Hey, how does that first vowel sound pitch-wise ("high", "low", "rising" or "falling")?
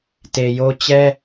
low